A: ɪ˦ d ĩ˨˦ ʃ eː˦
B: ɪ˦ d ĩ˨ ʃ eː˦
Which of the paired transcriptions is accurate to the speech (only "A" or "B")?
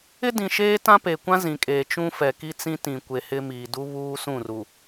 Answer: B